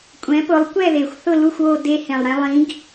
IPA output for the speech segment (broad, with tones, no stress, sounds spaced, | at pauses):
kʷʼ ɛ̃˨˥ p ʊ˨˥ lˠ kʷ ɛ˥˧ ð e˨˩ xʷ θ ʊ˥˧ l u˥˧ xʷ oː˥˧ d e˧ h ẽ˨˩ lˠ ɽ ɛ̃˥ lˠ ĩ˨˥ ɡ